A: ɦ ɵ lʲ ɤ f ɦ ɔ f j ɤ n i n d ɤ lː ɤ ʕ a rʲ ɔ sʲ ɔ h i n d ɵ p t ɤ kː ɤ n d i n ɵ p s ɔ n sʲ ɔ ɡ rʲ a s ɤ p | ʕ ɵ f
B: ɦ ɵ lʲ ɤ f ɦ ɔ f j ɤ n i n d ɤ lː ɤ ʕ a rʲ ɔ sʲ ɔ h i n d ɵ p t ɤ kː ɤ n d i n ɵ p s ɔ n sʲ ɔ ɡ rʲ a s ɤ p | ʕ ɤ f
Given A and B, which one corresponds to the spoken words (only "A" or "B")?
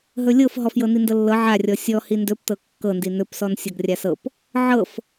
B